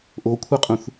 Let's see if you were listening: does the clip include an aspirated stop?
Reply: yes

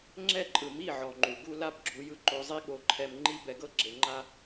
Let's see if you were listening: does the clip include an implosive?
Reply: yes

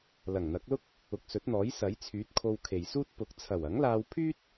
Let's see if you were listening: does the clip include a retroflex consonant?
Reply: no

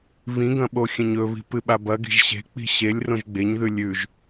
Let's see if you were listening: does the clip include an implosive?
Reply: yes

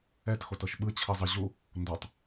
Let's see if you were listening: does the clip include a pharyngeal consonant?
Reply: no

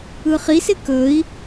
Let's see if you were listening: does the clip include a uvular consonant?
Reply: yes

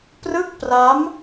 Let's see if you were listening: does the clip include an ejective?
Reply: no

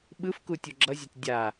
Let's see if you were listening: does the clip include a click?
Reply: yes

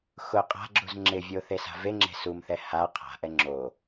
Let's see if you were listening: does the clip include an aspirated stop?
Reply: yes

